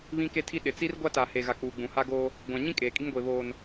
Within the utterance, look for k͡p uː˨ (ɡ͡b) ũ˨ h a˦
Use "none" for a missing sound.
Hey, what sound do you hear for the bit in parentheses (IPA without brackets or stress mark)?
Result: ɡ͡b